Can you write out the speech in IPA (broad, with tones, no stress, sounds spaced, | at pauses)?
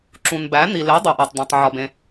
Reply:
ǁ ũ˩ n b æ˩˥ n̪ i˩ l e˩˥ dˤ o˩ ʔ æ˩ tˤ d̪ ẽ˩ tˤ ʕ ɒ˩ b ẽ˩